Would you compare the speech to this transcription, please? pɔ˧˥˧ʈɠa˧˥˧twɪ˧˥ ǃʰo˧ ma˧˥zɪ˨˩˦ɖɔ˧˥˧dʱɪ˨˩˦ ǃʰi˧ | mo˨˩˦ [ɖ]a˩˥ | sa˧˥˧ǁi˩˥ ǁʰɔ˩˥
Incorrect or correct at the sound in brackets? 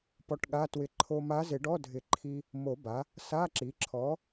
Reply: incorrect: b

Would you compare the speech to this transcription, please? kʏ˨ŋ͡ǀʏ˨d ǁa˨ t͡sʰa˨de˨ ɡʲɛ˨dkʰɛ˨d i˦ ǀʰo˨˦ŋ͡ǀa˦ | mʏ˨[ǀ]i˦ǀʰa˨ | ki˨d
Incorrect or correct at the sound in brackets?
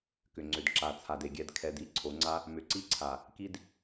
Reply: correct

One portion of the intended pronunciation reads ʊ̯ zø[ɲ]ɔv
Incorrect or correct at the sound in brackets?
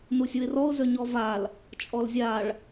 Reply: correct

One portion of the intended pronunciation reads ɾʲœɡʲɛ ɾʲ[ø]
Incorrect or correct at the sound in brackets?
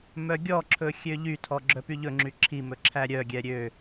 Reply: correct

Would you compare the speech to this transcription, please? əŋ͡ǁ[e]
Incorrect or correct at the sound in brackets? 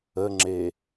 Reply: correct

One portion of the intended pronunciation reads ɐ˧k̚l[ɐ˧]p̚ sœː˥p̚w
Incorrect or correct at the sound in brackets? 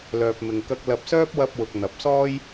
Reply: correct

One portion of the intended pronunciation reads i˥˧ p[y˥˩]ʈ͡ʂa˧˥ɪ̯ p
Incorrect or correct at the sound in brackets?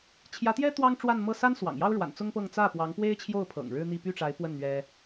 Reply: correct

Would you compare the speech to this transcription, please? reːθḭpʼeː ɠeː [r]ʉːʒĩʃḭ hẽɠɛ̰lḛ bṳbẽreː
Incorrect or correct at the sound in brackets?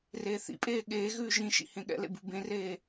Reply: incorrect: ɣ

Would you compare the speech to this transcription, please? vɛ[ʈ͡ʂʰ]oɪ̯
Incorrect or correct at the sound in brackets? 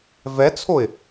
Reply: incorrect: t͡sʰ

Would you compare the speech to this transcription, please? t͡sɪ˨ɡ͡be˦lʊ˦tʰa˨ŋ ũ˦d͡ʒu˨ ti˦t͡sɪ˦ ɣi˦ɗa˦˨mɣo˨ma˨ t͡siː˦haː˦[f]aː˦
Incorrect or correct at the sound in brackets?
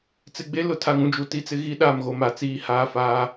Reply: correct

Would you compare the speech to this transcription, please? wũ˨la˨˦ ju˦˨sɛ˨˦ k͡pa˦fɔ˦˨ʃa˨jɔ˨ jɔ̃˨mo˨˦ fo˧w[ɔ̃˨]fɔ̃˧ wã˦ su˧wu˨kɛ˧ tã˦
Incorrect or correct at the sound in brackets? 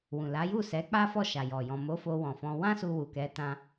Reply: correct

